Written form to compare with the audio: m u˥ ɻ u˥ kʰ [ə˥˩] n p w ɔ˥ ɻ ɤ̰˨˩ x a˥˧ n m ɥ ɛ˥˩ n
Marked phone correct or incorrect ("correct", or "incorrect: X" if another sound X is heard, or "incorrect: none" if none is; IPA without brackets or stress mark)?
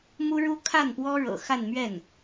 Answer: incorrect: a˥˩